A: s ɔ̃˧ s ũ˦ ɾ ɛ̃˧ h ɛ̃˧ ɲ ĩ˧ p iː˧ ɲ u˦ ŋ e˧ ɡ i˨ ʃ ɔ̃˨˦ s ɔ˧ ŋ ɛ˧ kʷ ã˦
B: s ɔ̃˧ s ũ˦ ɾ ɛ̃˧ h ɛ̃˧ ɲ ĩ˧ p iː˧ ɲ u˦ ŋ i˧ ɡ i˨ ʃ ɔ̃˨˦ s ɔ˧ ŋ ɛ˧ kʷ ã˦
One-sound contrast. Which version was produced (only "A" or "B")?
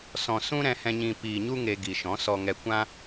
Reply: A